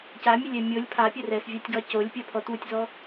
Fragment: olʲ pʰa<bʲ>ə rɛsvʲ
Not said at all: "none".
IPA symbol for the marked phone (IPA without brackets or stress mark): pʲ